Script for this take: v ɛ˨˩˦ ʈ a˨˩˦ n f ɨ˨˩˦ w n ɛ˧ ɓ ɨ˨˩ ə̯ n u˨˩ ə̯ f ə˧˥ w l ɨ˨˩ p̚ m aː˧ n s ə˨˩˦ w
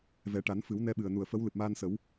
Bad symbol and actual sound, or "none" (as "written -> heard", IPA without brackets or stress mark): none